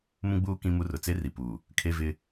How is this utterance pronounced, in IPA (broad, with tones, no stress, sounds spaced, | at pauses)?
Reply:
m ũ˦ ɡ͡b uː˦ k ĩ˦ m u˦ r ʊ˨ t͡s e˦ r i˨ p u˨ | kʰ e˦ v ɪ˦